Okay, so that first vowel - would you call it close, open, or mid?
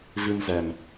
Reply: close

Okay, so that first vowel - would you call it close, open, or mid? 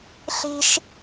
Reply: close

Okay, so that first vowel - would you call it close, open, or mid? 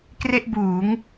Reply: mid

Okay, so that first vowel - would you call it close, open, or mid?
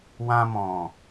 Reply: open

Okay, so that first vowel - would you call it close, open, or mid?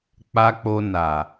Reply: open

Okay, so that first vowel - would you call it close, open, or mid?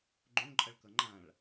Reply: mid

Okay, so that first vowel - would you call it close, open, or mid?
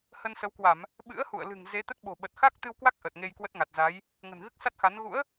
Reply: mid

